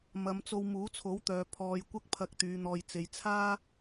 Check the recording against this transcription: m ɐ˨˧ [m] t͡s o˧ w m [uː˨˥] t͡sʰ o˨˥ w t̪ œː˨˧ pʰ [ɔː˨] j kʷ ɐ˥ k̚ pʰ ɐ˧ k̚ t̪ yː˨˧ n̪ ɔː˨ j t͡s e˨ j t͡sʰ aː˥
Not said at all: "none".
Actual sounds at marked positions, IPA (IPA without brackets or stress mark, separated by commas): m, uː˨˥, ɔː˨